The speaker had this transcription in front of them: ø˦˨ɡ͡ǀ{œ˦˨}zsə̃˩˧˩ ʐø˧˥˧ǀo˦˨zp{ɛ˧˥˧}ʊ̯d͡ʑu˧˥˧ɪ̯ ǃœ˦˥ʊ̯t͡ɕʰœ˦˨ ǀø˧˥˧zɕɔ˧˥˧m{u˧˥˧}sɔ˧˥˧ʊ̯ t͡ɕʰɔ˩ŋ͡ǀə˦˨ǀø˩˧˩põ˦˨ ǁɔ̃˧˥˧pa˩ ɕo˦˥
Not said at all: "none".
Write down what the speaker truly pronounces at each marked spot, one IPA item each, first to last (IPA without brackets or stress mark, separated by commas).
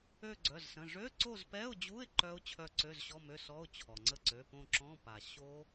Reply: œ˩˧˩, ɛ˧˥˧, ø˧˥˧